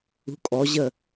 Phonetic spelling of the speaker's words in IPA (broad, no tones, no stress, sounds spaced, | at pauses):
ṳ kʼ ɔ ʑ ə